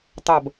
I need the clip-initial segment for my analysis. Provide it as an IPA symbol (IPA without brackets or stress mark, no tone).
tˤ